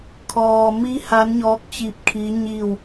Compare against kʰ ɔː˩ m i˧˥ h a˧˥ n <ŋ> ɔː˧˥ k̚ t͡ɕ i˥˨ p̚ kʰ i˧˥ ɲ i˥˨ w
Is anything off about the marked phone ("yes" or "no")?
yes